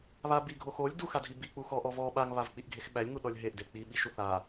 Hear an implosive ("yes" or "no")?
yes